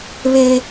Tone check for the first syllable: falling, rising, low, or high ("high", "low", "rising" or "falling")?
high